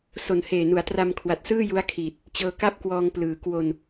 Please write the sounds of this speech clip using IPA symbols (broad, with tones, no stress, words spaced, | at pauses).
so˨˩nheː˨˩nu˩˦a̯ tra˧mkʰwa˨˩t̚sɯː˥˩ ju˦˥a̯kʰiː˨˩t̚ | t͡ɕɤː˧ka˥˩p̚kwɔː˧ŋ plɯː˩˦ kwo˧n